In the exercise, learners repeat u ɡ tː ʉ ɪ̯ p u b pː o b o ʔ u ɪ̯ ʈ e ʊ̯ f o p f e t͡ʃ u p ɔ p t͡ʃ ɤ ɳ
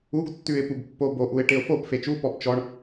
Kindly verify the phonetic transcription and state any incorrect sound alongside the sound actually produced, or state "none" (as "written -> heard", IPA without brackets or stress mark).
ɤ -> ɔ